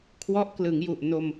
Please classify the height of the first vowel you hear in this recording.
mid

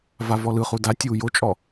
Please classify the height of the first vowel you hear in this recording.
low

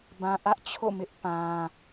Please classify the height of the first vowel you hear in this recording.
low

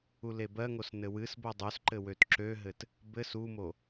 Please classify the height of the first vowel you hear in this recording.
high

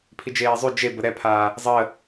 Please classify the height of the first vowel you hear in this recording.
high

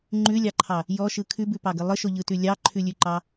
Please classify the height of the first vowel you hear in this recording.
high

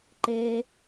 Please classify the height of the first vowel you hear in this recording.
mid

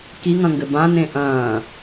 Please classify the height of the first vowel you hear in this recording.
high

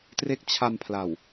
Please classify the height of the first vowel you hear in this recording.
mid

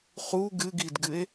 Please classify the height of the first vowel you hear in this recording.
high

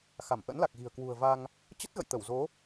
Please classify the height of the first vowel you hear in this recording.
low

